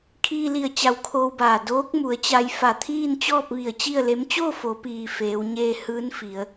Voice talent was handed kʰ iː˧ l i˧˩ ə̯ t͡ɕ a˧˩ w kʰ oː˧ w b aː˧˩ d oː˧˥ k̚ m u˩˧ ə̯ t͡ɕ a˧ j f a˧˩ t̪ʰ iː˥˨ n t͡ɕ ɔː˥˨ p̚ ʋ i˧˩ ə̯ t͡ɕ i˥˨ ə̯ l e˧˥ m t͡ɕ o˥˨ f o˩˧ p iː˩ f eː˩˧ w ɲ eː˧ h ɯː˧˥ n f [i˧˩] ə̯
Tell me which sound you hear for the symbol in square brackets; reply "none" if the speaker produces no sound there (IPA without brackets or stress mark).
i˩˧